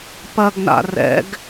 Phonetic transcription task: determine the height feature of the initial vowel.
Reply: low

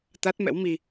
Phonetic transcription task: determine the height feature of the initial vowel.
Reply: low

